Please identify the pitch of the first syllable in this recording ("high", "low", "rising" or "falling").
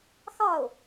falling